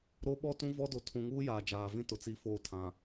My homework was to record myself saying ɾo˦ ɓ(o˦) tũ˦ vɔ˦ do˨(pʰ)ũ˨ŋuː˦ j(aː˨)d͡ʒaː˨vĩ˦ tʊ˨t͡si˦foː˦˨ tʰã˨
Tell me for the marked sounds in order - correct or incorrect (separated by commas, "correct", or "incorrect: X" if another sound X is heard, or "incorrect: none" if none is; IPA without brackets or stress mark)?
incorrect: ɔ˦, incorrect: tʰ, correct